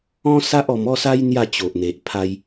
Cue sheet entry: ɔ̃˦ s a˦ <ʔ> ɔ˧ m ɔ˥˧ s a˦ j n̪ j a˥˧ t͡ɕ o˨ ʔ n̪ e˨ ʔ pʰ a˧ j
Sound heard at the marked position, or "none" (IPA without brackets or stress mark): ʔ